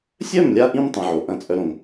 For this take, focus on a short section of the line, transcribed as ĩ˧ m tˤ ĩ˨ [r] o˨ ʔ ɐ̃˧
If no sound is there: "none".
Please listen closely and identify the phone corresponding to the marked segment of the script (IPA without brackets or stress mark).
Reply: ʕ